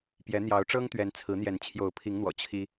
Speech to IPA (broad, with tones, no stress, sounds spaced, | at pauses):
p j ɛ˨˦ n̪ j ɑ˨˦ ʊ̯ ʈ͡ʂ ɤ˦ ŋ t̪ ɥ ɛ˨˦ n t͡sʰ ɹ̩˨˦ n̪ j ɛ˨˦ n t͡ɕʰ j o˨˦ ʊ̯ pʰ i˨˦ ŋ n̪ w ɔ̰˨˩ t͡ɕʰ i˦